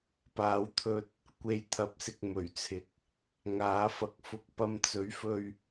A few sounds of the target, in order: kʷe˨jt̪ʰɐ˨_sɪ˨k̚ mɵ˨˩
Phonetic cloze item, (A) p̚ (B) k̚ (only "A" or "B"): A